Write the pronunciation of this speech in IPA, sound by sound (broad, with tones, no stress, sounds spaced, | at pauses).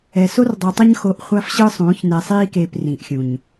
ɛ˨ s o˦ r dˤ o˨ tˤ ʌ˦ ɲ x o˨˦ ʔ χʷ a˦ f ɕ ɯ˦ sˤ ũː˨˦ ç n ɛ˨ sˤ iː˦ k eː˨ p r ĩ˨ ʔ xʲ ũ˨ ɲ